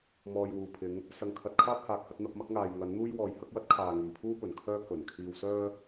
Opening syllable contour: low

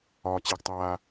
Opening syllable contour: low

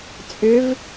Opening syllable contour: rising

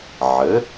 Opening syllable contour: rising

